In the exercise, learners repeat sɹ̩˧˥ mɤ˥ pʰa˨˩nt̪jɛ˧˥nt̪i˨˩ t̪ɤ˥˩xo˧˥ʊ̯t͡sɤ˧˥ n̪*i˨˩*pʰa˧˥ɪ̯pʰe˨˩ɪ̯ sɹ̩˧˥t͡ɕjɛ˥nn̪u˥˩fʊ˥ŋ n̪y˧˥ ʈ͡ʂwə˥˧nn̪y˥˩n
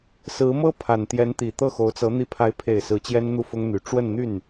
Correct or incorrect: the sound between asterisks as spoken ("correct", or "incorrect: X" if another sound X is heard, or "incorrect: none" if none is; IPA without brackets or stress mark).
incorrect: i˧˥